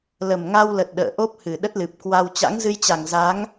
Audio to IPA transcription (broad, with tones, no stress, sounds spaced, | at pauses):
l ə˨˩ m ŋ a˧ w l ə˨˩ t̚ ɗ ə̰ː˧˨ ʔ o˦˥ p̚ h ɨ˨˩ ɗ ə˦˥ t̚ l ɨ˨˩ p̚ k w a˧ w t͡ɕ a̰˧˥ ŋ z ɨ˧ j t͡ɕ a˨˩ ŋ z a˨˦ ŋ